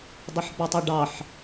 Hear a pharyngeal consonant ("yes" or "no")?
yes